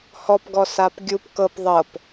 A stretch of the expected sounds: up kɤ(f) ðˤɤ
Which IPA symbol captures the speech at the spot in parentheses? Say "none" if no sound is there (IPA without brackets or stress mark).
p